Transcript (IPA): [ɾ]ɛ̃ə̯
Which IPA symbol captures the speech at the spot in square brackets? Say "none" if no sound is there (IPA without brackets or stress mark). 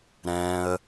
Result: ɾ